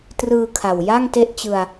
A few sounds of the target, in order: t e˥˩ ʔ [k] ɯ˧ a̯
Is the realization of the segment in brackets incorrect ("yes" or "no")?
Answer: yes